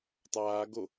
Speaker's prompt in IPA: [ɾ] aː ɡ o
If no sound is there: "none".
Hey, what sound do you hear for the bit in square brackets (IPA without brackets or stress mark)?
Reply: tˤ